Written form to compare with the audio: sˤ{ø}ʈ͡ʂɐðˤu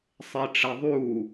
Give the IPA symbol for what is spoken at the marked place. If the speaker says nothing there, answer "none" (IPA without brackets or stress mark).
e